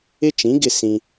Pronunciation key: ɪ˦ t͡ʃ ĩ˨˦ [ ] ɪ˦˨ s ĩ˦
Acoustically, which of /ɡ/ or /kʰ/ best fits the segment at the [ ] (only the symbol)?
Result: ɡ